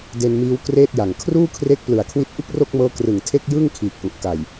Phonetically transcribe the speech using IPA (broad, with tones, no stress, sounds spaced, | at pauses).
d e˧ n m iː˦˥ w k r eː˥˩ t̚ j a˨˩ ŋ kʰ r uː˥˩ kʰ r e˦˥ k̚ p l ɯ˨˩ a̯ kʰ w i˦˥ t̚ ʔ ɯ˥˩ k̚ r o˥˩ k̚ m ɤː˦˥ k r ɯ˨˩ ŋ tʰ e˥˩ k̚ j ɯ˥˩ ŋ kʰ iː˨˩ k̚ ʔ u˨˩ ʔ k a˨˩ j